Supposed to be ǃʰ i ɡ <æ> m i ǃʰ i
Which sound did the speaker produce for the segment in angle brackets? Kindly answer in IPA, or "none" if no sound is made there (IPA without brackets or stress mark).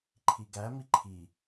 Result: æ